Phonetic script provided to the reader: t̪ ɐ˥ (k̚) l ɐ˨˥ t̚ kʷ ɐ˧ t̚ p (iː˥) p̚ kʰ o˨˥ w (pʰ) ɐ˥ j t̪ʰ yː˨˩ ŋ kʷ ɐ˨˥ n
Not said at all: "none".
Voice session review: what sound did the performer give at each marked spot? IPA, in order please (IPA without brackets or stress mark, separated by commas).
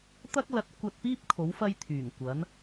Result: k̚, iː˥, f